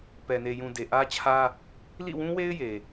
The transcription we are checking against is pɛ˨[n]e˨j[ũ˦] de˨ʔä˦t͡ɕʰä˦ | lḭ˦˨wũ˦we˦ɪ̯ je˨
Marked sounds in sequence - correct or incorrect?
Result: correct, incorrect: ũ˨

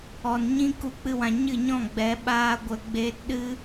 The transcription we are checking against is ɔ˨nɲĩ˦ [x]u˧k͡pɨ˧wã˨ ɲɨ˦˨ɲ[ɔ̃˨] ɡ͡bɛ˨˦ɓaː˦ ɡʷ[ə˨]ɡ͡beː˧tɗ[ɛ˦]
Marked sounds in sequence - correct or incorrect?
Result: incorrect: k, incorrect: ɔ̃˦˨, correct, incorrect: ɨ˦

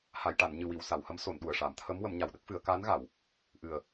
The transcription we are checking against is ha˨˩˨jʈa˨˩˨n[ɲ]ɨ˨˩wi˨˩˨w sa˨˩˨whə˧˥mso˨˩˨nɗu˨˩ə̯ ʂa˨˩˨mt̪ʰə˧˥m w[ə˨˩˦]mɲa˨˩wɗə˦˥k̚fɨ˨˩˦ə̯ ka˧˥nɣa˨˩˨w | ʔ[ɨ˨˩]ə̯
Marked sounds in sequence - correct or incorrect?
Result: correct, correct, correct

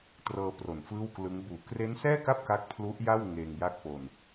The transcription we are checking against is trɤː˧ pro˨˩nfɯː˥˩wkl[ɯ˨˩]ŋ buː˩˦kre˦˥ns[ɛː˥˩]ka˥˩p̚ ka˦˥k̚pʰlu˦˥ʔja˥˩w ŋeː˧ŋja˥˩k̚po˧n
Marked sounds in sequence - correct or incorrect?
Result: incorrect: ɯ˦˥, correct

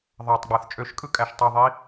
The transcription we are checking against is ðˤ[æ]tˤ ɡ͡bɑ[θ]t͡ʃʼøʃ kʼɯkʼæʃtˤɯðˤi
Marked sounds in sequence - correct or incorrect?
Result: correct, correct

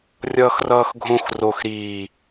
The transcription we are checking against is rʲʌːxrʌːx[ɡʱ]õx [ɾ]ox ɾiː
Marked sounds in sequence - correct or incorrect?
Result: correct, incorrect: r

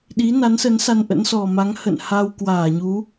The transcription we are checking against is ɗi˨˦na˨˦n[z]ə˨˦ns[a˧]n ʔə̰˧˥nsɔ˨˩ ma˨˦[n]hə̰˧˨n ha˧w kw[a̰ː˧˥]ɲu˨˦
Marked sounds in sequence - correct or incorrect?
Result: incorrect: s, correct, incorrect: ŋ, incorrect: aː˧˩

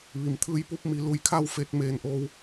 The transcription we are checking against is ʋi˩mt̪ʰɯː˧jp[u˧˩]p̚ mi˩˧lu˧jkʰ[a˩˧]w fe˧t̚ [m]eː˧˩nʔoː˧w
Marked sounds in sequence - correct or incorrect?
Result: incorrect: u˧˥, incorrect: a˥˨, correct

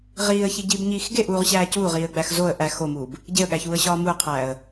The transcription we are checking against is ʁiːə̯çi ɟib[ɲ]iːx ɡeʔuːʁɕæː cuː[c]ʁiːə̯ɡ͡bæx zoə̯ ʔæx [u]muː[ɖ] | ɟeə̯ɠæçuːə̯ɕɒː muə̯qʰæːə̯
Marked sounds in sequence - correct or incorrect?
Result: correct, incorrect: none, incorrect: o, incorrect: b

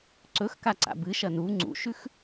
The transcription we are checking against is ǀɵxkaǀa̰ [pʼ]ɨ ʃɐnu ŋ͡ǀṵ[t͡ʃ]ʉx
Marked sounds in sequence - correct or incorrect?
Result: incorrect: b, incorrect: ʃ

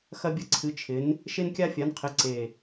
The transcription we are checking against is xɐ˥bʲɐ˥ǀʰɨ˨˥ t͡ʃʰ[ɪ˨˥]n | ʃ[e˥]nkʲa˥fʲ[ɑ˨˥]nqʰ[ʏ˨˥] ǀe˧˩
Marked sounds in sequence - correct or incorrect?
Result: correct, correct, incorrect: a˨˥, incorrect: ɪ˨˥

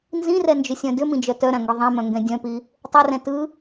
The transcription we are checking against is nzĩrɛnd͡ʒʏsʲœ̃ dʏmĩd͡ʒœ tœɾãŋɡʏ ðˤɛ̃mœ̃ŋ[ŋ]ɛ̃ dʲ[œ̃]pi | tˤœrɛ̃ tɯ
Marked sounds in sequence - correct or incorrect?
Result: incorrect: ɡ, correct

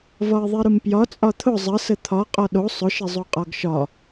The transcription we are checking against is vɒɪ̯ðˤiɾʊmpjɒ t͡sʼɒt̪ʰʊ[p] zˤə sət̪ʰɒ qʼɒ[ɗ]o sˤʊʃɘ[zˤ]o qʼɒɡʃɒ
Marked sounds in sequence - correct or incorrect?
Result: incorrect: none, correct, correct

